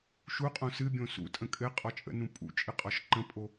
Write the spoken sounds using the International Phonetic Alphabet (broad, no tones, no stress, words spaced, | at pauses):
ʃuqʼõ sɨbʲõ sṵtʼə̃ kʼɘ qʼɔt͡ʃʼə̰nũ pʼṵt͡ʃʼɨ qʼɔʃǃə̃pʼo